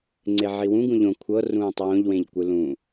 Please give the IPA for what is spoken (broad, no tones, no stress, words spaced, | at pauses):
ŋ͡ǀeʕiwũ ɡũʎõ kʷʰɤ rũːtˤwõʎ wẽʎkʷɯlũ